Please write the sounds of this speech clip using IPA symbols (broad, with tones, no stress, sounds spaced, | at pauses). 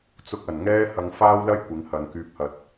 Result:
t͡s ʊ˧ k̚ ɐ˨˩ n ŋ ɛː˥ h ɐ˧ ŋ f aː˥ w l ɐ˥ j kʷ ɪ˨˥ ŋ h ɐ˨˧ n k yː˨ p̚ h ɐ˨ t̚